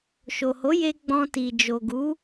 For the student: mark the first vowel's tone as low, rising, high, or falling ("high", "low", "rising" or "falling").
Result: low